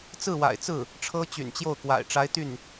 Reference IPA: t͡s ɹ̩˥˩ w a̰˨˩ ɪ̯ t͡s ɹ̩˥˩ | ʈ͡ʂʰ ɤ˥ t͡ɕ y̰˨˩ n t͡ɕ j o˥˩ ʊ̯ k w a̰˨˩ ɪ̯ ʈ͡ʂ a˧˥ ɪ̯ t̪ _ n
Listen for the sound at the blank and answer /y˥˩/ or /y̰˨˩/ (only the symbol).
y˥˩